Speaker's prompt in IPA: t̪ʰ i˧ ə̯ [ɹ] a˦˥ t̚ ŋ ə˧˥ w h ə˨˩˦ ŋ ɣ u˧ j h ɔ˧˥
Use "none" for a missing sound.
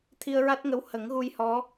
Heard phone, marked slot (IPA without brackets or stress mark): ɹ